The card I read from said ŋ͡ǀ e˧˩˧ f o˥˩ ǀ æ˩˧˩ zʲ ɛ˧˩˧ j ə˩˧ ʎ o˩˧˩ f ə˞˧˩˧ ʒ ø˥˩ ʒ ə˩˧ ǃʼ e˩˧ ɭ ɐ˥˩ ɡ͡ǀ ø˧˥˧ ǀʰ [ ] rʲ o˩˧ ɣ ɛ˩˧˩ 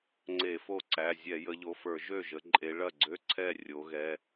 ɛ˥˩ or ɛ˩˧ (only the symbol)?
ɛ˥˩